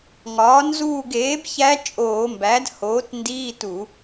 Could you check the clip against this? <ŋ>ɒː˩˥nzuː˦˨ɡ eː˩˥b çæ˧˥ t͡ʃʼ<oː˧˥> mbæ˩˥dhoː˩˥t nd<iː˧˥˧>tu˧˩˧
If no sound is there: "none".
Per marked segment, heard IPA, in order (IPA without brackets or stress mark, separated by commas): ŋ, oː˧˩˧, iː˧˥˧